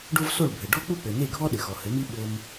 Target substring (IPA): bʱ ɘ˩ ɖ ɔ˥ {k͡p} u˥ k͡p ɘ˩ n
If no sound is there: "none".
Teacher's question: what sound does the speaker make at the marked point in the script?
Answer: k͡p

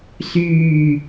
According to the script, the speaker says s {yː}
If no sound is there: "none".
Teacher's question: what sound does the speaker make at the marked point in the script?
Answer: yː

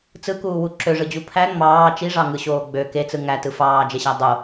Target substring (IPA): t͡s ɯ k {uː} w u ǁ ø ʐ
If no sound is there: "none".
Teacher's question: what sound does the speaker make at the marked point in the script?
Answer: uː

